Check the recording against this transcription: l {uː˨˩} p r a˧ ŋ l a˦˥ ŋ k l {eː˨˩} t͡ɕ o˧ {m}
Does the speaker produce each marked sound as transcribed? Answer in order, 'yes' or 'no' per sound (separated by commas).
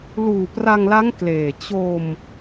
yes, yes, yes